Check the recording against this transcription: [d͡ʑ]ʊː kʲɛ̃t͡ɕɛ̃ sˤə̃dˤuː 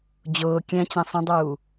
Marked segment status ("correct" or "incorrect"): correct